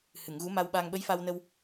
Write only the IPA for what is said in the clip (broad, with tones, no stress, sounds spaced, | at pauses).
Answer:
h ɨ˨˩˨ ŋ ɣ u˧˥ m a˧ w ɓ a˧ ŋ ɓ ə˧˥ j f a˧ w n ə˧ w